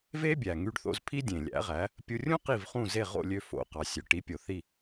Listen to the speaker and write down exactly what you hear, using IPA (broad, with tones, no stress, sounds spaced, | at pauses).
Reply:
v e˥ bʲ æ˩ ŋ y˧ ɖ θ o̰˧ z pʰ i˥ dʲ ẽ˩ lʲ æ̰˩˥ ʁ æ˩˥ | pʲ u˧ rʲ ũ˥ q i˥˩ v χ ũ˥˩ z e˥˩ ʁ o̰˥˩ lʲ ø˧ f o̰˩ q ɑ˩ sʲ ø˩ ʈ i˩˥ pʲ o˩ θ i˥˩